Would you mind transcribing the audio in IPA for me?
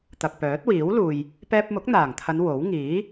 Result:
t̪ ɐ˨ k̚ p œː˨˥ t̚ w iː˨˥ w l uː˨ j | p ɛː˧ p̚ m ʊ˨˥ k̚ n̪ aː˨˩ ŋ t̪ʰ ɐ˨˧ n w o˨˥ w ŋ iː˨˥

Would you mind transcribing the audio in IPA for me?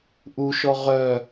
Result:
ʔ u ʃ ɔ ʁ œ

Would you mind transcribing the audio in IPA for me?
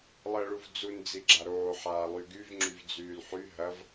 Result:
lˠ əː ɭ u v d͡z u n d͡z i ɡ͡ǁ a ɾ oː ħ aː lˠ y ɡ y v ŋ͡ǁ y v d͡z yː l ħ y ɦ ɐ v

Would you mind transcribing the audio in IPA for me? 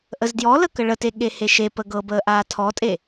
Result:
ʔ ə z d j ɔ l ə k ə ɭ ə t e ɠ e h e ʃ e p ə ɡ ɤ b əː ʔ aː tʰ ɔ tʼ e

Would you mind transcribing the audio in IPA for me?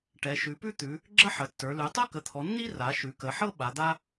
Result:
ʈ ɛ˩˧ ʃ ʉ˩˧ p ʉ˥ t̪ ʉ˩˧ | ɡ͡ǁ ə˥ ħ ə˩˧ tː ə˞˩˧ l ʉ˩˧ tˤ ɤ˥ k ə˩˧ t̪ʰ ɔ˩˧ nː i˥ r a˩˧ ʃ ʉ˩˧ k ə˩˧ ħ ɤ˥ ɓ a˩˧ d̪ a˥

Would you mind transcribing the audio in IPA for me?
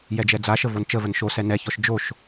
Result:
j ɛ d͡ʒ ɛ d͡z a ʃ ə v o n t͡ʃ ə v ə n ʃ o s ɛ n ɛ ç ɔ ʃ d͡ʒ o ʃ

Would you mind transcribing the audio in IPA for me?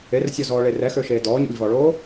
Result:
e r sʲ ɔ z ɔː ɭ e r ɛ x ø ʃ eː d ɔː ɲ ṵ lʲ v ɔ ɭ oː

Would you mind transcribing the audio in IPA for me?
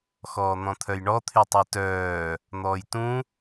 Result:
x ɔː n̪ ɔ̃ t̪ʰ œ j ɳ ɔ t̪ʰ y tˤ ɛ t œː | n̪ ɔː j t ũ

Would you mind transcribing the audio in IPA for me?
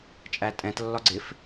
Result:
t͡ʃʼ æ tʼ ɛ̃ t lː ɒ ɡ͡ǀ ɪ f

